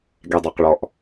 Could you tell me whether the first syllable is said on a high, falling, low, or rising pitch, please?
low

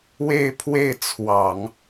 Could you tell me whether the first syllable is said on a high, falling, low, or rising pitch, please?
falling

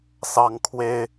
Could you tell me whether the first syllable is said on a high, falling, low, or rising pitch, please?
high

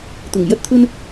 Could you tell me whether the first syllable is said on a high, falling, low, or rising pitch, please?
low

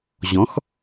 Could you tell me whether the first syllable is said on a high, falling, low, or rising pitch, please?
rising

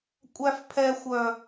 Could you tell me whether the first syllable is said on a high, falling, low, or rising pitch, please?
high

